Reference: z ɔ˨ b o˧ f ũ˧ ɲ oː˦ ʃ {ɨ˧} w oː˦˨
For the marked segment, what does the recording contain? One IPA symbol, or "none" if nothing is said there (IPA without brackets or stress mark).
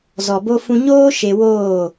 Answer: e˧